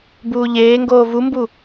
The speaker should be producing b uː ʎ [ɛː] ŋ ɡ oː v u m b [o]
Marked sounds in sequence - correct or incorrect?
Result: incorrect, incorrect

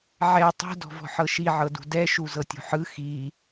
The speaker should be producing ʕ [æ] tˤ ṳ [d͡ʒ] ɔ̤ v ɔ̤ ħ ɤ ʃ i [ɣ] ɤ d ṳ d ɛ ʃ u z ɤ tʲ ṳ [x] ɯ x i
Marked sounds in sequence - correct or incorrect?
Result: incorrect, incorrect, incorrect, incorrect

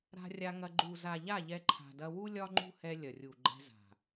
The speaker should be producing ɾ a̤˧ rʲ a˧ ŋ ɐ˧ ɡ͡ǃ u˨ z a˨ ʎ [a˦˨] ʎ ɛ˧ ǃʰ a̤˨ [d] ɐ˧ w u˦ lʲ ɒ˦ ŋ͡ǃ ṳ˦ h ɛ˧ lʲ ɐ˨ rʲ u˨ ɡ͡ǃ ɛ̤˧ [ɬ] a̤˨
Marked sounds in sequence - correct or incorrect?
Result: correct, correct, incorrect

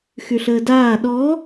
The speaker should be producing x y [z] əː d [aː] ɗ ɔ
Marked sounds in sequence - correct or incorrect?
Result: incorrect, correct

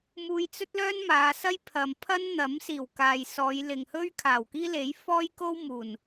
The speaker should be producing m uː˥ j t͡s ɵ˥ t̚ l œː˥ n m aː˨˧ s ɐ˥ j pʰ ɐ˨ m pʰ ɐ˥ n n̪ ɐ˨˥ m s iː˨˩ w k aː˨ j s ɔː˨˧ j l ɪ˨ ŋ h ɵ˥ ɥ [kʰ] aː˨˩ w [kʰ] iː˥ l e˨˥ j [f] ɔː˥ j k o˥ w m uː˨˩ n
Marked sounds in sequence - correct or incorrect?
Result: correct, incorrect, correct

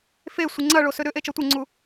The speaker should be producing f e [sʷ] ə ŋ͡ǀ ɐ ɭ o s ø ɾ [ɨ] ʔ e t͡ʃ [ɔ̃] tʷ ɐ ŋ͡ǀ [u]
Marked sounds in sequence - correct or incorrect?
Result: correct, incorrect, incorrect, correct

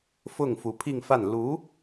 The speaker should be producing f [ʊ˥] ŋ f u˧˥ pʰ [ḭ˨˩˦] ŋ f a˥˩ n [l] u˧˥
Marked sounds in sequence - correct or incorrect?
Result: incorrect, incorrect, correct

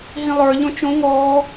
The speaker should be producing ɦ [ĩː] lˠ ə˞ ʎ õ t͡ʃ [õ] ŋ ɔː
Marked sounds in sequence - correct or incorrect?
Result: incorrect, correct

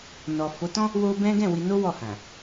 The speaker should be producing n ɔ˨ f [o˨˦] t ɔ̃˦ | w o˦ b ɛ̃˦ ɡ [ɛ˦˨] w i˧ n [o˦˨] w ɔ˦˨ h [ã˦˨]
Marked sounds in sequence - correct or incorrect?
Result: correct, incorrect, incorrect, incorrect

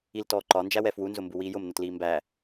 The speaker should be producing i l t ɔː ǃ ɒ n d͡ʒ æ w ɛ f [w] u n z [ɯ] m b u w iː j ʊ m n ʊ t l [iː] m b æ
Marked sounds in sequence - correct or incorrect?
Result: correct, incorrect, correct

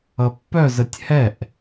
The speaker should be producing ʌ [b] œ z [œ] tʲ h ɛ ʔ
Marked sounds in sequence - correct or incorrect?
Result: incorrect, incorrect

